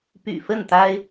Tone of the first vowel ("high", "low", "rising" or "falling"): low